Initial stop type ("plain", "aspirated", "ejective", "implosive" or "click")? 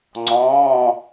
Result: click